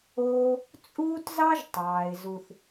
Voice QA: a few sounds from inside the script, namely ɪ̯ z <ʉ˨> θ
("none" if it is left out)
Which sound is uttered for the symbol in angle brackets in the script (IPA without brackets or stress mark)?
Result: u˨